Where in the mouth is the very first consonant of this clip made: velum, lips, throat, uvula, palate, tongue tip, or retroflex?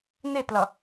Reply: tongue tip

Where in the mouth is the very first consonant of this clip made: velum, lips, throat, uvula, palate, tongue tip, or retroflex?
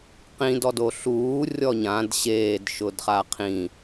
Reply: uvula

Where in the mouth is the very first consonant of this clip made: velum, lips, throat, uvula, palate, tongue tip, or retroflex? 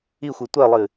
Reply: velum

